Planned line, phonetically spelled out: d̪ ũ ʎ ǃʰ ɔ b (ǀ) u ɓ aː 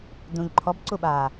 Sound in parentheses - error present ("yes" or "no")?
no